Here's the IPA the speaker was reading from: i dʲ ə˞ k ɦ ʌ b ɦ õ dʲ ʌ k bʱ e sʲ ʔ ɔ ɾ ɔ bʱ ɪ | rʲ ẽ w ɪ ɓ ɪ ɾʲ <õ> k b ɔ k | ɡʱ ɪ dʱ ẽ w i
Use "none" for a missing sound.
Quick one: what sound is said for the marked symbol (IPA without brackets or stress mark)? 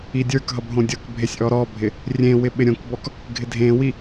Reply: õ